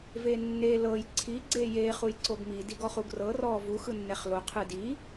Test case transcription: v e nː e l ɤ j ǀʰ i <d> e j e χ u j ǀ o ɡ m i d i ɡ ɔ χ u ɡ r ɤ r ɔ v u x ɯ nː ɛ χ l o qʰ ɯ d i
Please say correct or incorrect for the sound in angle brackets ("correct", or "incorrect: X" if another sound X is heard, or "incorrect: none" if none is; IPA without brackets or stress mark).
incorrect: ɡ͡ǀ